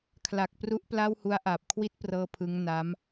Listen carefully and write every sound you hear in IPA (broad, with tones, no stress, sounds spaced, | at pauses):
kʰ l a˨˩ k̚ p r u˦˥ ʔ p l a˥˩ w h u˦˥ a̯ ʔ aː˨˩ p̚ kʰ w i˥˩ t̚ p r ɤː˦˥ pʰ ɯ˦˥ ŋ n a˦˥ m